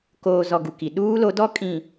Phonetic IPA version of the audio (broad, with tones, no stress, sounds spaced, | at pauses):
k oː˨ z ɔ˨ ɡ u˨ k i˨ ɗ uː˦ l o˨˦ d ɔ˦ kʼ ĩ˨